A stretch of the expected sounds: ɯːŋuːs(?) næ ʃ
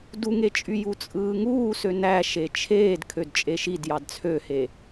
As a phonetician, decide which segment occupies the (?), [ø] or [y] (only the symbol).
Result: ø